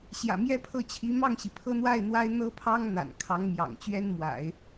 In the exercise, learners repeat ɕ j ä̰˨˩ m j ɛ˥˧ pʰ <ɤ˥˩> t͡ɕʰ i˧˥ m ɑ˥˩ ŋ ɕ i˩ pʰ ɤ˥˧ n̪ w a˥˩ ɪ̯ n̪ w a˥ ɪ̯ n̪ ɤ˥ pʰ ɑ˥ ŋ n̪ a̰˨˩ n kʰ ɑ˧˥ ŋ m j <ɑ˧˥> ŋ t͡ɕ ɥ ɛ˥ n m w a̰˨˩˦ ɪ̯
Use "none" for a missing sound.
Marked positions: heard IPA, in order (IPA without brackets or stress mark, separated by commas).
ɤ˥˩, ɑ̰˨˩